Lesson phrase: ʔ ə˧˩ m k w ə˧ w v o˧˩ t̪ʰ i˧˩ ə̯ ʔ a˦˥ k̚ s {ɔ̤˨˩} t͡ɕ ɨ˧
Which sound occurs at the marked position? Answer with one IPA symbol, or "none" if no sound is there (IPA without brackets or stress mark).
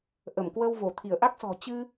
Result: ɔ̤˨˩